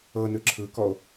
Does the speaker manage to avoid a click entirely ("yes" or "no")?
no